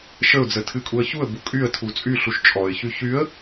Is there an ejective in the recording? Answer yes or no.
yes